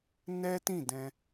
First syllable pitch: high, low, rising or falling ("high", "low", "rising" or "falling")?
high